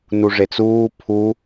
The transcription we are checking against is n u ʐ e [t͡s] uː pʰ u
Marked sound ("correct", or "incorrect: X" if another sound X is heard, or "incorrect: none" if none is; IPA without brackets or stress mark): correct